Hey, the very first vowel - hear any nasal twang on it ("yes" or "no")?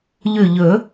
no